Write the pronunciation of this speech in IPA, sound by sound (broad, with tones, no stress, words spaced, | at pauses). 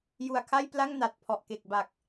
ju˨˩a̯kʰa˥˩jpla˥˩ŋ na˨˩t̚pʰɔ˨˩ʔke˨˩k̚ ba˨˩k̚